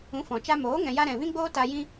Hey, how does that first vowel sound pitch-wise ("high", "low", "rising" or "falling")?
rising